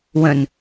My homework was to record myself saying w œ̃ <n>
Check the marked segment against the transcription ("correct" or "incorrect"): correct